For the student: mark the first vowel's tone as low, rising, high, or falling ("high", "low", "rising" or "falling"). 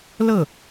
falling